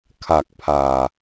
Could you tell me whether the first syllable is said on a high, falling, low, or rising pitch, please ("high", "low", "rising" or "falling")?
low